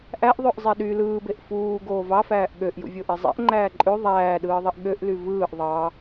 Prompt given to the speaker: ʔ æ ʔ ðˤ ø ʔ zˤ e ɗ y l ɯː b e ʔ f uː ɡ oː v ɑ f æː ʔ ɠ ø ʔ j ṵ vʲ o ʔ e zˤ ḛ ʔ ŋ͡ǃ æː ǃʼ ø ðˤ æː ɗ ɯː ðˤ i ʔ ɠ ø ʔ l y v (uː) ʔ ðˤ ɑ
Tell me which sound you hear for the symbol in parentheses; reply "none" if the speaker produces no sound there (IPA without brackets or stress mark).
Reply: ɯː